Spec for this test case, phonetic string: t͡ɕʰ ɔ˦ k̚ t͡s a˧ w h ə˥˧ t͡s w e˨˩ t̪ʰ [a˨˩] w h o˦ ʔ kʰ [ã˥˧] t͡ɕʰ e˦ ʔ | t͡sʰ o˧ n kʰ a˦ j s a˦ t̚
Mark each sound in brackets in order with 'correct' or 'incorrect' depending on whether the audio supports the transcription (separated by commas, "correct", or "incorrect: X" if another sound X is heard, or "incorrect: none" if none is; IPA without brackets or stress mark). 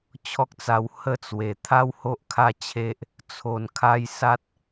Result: incorrect: a˦, incorrect: a˥˧